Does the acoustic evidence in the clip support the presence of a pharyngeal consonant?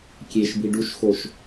no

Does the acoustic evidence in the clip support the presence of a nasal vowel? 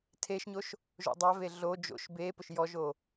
no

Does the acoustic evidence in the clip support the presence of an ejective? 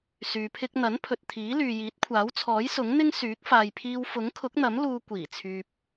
no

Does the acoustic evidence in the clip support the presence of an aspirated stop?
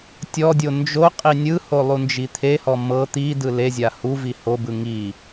yes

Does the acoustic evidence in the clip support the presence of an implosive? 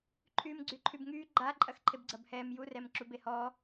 no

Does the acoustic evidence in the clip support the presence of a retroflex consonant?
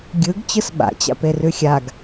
no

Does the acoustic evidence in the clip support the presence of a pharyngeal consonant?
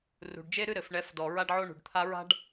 yes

